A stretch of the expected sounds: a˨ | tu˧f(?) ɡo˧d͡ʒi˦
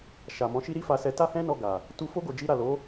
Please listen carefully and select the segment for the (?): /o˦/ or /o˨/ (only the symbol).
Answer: o˦